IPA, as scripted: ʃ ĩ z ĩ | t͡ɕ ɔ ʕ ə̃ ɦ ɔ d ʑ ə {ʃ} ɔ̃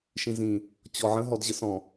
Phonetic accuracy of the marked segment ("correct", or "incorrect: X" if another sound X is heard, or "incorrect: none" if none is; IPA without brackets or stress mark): incorrect: s